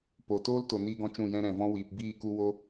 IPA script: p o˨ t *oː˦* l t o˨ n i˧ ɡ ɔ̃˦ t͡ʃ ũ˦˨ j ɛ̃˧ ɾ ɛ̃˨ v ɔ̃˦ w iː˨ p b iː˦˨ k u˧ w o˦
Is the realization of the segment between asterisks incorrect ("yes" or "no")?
no